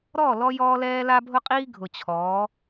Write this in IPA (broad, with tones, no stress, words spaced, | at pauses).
ɾɔ˦˨ lɔ˦jɔː˦lɛː˦ la˦bʱʊ˦qʼiː˦ ɡʱʊ˨t͡ɕʰɔː˨˦